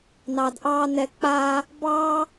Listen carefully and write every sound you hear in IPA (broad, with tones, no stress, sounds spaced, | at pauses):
n ɑː˨ d ʔ ɑː˧ n ɛ˨ k͡p aː˧ | b ɑː˦